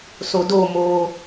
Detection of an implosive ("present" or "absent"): absent